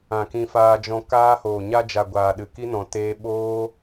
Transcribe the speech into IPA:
ã˨ kĩ˧faː˧d͡ʒɔ̃˧ kaː˧hoː˨ɲa˧ d͡ʒa˨ɡʷaː˨ ɗɨ˨ ki˦nɔ̃˨ teː˧ɓoː˦

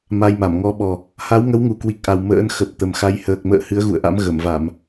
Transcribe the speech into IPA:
ma˧jma˧˩m ŋɔ˨˦ɓɔ˨˩ | ha˨˦wŋə˨˦wŋu˨˩kwi˨˩k̚ ʔa˨˩w mə̰ː˧˥n xə˨˩p̚ t̪ə˨˩mxa˧j həː˨˩k̚mə̰ː˧˨ hɨ˨˦ə̯ɣṵ˧˨ə̯ʔa̰˧˥m ɣə˧˩mva˧˩˨m

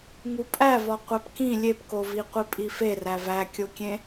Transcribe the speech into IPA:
ŋupʼæ vɒqʷæpkĩ lʲepko viqʷipʼife rævækʲokʲẽ

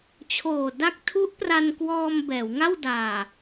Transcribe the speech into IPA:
t͡ɕʰoː˨˩ da˥˩k̚ tʰu˦˥ʔpra˧nkwɔː˧m bɛː˩˦wŋa˥˩w daː˨˩

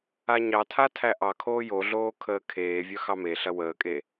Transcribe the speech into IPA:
aɲɑtʰa tʰæʔɑkʰoː joɮoː kʰəːkʰeːvʲœ xɑmeɬɐ wəːkʼe

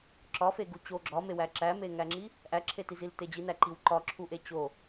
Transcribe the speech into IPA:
ǁɒ feɡut͡ɕo ɡ͡ǁɒmewæ ǁæmeŋæŋ͡ǁi | ʔæǁʰetizil ted͡ʑinæ ǃiwǃɒǁʰuʔe t͡ɕo

